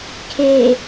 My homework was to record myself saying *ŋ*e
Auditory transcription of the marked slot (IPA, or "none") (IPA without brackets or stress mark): kʰ